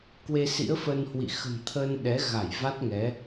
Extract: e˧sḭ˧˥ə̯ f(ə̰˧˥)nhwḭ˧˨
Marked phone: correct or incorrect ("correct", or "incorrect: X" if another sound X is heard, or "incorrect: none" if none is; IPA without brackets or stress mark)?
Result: incorrect: ə˧